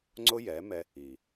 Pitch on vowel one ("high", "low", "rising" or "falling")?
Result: high